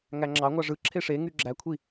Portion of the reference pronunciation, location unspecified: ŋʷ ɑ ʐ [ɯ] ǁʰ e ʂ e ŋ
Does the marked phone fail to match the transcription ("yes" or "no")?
no